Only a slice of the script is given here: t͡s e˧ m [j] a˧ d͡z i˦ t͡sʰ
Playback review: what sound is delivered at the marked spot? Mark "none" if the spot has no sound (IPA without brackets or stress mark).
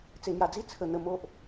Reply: j